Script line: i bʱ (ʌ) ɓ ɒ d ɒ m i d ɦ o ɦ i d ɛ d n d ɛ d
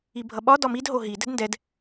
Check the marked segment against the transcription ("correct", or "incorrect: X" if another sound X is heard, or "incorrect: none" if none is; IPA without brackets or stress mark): correct